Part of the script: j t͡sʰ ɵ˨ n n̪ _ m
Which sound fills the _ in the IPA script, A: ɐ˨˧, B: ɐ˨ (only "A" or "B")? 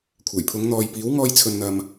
B